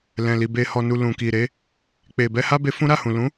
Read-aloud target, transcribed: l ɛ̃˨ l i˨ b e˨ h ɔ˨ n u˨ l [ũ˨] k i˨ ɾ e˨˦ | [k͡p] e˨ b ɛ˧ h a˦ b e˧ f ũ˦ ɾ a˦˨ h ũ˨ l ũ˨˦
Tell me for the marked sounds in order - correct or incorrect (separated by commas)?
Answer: correct, correct